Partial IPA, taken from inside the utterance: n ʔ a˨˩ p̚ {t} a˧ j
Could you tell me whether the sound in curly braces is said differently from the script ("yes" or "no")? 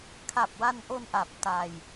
no